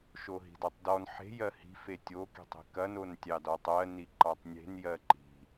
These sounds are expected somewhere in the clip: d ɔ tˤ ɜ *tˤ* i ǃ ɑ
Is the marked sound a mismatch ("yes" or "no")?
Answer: yes